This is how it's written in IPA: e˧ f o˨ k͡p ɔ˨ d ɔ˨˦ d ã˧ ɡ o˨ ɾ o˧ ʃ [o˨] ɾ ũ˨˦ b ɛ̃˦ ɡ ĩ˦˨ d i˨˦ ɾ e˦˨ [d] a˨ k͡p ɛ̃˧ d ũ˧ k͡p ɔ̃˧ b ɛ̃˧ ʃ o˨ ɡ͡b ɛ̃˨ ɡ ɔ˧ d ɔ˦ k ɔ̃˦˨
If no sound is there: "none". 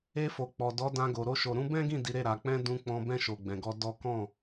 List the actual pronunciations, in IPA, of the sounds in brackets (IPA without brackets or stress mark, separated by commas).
o˨, ɾ